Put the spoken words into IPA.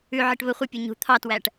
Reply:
ʉʕɪʈ βə χʷɪpʲu ɲṳ t̪ʰɑtwæʈ

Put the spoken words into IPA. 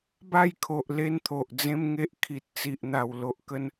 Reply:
ba˥˧jkʰo˨ʔ le˥˧nt̪ʰo˨ʔd͡zẽ˦mŋe˦ʔ kʰi˨t̚t͡si˨ʔn̪a˨˩w lo˦ʔkə˦n

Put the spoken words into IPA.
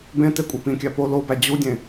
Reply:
bẽte kʷʼepĩkʲæ po lobæ d͡ʑudʲẽ

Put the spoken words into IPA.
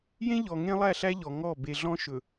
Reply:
jẽ˦ʎɔ˨ ŋẽ˦lˠæ˦˨ɬæ˦ ʎɔ˨ŋɔ˦˨ be˨ɮɔ̃˦ʃɵ˨

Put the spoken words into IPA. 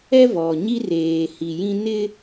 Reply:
ɛ˦ vɔ˨ ɲi˦reː˨hi˨jĩ˦ nɪ˦

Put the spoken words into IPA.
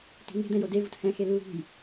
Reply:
ti̤ŋe̤ d̪ɛ̃jode vuthɛ̃ xelːṳj

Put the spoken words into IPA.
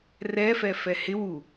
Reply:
rɛfɛfɛ hɪ wu

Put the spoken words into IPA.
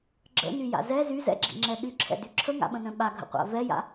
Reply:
ɡ͡ǁə̰nyja̰ zɛ zyzɛ̰ɡ͡ǁḭŋ͡ǁɛ ɗyǁʰɛ̰dy ǁʰəŋa̰ɓə̃nœ̃ ɓaɡʱə̰qʷa̰ vɛja̰

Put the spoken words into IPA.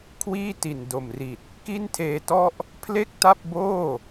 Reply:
kʰwiː˥˩ti˨˩ndo˨˩mri˨˩t̚ | ki˥˩ntʰeː˧tɔ˥˩ʔ | pʰle˥˩k̚ta˥˩p̚boː˥˩

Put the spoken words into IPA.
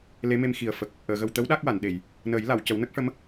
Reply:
le˧˥me˧m xi˨˩ə̯fə˨˩k̚ | ʔəː˨˩˨ɣə˨˩wt̪ə˧˥w ɗa˦˥k̚wa˨˩˨nɗe˨˩˨j | nəː˨˩˦jla˨˩˨w cə˨˩˦wnə˦˥k̚ʂə˧˥m

